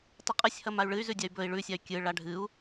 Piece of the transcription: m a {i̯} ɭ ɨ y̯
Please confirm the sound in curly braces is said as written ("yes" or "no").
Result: no